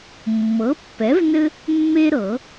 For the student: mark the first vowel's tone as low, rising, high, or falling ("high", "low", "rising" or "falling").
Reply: rising